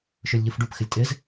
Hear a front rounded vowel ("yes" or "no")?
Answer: yes